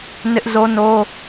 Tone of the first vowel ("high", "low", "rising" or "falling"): high